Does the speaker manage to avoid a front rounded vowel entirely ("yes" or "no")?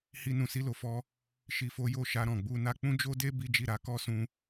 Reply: yes